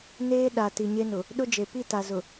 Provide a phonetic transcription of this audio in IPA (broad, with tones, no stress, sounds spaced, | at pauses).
n eː˦ ɗ a˨ t i˨ ɲ e˦ n ʊ˨ | ɗ ʊ˦ d͡ʒ e˨ p i˦˨ t a˨ z ʊ˨